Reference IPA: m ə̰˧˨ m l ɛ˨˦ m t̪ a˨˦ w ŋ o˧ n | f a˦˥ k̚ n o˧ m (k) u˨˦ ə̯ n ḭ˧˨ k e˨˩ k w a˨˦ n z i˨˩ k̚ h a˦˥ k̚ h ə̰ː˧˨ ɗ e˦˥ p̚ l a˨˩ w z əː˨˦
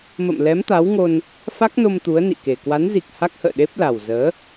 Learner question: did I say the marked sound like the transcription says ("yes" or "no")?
no